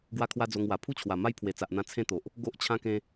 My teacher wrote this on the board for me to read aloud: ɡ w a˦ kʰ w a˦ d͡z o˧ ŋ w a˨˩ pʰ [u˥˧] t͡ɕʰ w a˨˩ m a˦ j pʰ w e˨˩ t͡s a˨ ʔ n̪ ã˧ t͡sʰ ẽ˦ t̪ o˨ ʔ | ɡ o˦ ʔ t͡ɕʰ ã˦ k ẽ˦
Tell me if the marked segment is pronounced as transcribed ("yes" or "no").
yes